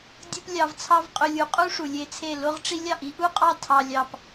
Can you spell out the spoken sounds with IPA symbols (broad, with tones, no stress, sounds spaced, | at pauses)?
dʲ u˦ p lʲ ɑ˧ v t͡sʰ ɑ˦ v qʼ ø˧ lʲ u˨ qʼ u˦ ʂ u˨ lʲ e˧ t͡sʰ e˦˨ l o˦ ʁ ʈ͡ʂ i˦ lʲ ɑ˦˨ ʔ i˦ ʔ u˦ qʼ ɑ˦ tʰ ɑ˧ lʲ ɑ˧ p